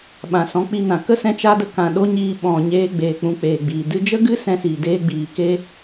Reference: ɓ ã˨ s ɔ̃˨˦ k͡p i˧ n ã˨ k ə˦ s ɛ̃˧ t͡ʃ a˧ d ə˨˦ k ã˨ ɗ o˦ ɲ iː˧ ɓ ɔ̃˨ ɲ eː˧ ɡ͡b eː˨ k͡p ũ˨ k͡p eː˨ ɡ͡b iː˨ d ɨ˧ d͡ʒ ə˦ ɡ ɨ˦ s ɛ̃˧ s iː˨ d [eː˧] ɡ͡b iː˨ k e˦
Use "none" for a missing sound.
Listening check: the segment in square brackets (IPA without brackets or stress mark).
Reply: eː˧